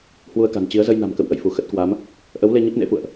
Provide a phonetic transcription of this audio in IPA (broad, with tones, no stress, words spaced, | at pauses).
hwu˧ə̯ka̤˨˩nt͡ɕi˨˦ə̯ zə˧jna̤˨˩mkə̰˧˨w ʔə̰˧˨jfu˧˩ xə˦˥t̚kwa˨˦m | ʔə˨˦wle˧ ɲə˦˥p̚nḛ˧˥fṵ˧˨ə̯ʔ